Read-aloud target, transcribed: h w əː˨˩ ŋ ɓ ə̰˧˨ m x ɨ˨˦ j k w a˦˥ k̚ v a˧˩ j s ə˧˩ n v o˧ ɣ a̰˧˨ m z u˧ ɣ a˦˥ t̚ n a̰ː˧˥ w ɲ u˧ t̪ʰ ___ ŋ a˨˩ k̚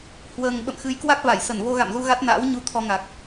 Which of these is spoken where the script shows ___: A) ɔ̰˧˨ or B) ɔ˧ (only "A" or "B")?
B